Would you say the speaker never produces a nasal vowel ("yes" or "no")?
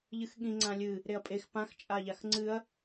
no